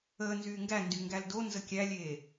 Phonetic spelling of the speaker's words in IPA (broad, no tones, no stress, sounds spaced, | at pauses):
əː n z yː ŋ ɡ æ n d y ŋ ɡ æ l d o n z ə kʲ æ lʲ eː